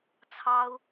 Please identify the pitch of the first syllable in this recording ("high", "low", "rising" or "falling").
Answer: high